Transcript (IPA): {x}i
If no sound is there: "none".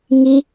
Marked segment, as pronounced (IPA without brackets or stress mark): ŋ